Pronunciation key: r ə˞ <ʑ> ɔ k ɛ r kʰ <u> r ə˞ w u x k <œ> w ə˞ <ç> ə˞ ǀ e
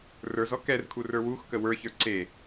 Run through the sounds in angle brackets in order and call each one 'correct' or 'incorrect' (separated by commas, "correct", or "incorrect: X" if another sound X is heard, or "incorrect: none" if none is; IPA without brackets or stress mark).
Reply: incorrect: z, correct, incorrect: ə, correct